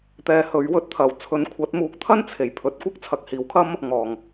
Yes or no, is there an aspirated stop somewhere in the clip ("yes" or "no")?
yes